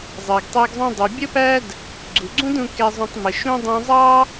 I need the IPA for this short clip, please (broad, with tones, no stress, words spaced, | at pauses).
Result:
zˤɜ˩ɡtˤɜ˧ɡzˤũ˧dˤu˩ bʲə˥pæ˥d | ɡ͡ǀu˩ɡ͡ǀũ˥dũ˧ kɛ˧zˤũ˧tˤ mə˩ʃũ˥ dˤũ˧zˤɑ˥